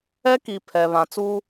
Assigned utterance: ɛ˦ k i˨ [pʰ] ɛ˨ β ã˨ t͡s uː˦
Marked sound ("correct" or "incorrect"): correct